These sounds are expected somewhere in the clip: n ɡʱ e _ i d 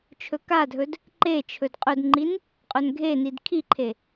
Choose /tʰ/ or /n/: n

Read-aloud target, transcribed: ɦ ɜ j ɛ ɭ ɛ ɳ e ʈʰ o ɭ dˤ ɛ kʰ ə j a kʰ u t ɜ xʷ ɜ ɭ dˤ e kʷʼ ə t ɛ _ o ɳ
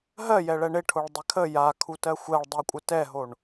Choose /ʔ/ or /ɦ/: ɦ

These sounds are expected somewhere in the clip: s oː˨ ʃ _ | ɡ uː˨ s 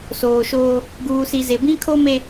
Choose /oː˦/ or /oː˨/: oː˦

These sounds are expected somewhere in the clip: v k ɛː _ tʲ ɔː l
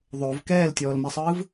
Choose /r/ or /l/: l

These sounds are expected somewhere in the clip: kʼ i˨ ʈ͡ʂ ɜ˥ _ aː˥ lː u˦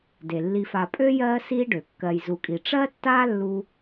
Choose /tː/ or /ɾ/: tː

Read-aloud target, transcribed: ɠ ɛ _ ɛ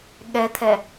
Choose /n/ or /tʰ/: tʰ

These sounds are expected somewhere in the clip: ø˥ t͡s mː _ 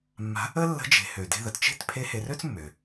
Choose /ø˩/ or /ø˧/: ø˩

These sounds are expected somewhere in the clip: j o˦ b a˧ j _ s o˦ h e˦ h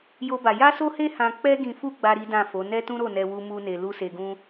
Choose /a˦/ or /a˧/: a˦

